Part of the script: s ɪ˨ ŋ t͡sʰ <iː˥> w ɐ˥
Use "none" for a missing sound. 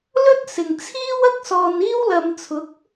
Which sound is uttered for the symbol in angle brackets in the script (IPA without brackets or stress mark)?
iː˥